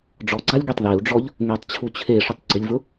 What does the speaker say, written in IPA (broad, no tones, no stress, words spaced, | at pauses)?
ɖ͡ʐɔɡ͡ǀalʲ ɡitˤðeu̯ɖ͡ʐɔʎ | ŋɛtˤt͡ɕʰu t͡ɕʰeʂʊtˤ ɡ͡ǀɪlʲvʊ